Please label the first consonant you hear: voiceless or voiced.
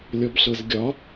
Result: voiced